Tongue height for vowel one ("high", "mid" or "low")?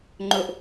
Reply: mid